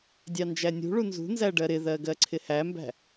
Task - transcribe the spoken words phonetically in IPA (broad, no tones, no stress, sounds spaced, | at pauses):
dʲ ɑ n d͡ʒ æ nʲ ṳ ɭ u n z ṳ n z æ ɖ ɜ ɾ ɪ ð ɜ ɡ ɜ ǀʰ ɪ h æ m b æ̤